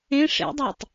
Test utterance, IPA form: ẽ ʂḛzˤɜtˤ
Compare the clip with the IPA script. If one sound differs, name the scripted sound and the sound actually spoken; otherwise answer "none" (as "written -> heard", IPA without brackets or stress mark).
zˤ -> dˤ